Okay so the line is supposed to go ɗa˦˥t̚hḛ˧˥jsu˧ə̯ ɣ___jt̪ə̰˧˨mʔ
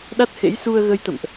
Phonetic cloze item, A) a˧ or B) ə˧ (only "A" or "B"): B